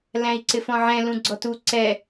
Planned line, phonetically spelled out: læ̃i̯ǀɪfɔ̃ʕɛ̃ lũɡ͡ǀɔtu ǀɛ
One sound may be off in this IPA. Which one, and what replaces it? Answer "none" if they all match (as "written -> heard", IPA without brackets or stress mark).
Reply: none